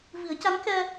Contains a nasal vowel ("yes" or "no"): no